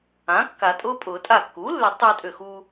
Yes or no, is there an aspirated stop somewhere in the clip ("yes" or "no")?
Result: no